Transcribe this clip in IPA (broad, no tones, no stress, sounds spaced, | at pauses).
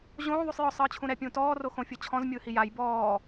ʑ õː ðˤ u sˤ j ɔ sˤ ɯː t͡ɕʰ ũ ɾ ɛ pʲ ũː t ɔː r o x õ fʲ ɤ t͡ɕʰ ɔ̃ z mʲ ɯː h i j a j b ɔː